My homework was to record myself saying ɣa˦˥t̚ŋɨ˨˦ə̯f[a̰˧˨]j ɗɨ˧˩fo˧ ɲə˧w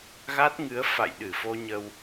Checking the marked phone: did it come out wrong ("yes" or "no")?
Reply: no